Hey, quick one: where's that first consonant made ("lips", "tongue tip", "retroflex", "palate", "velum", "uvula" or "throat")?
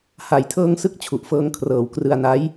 throat